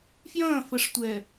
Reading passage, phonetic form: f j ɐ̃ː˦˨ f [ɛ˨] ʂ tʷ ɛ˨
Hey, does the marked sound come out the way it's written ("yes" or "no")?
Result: no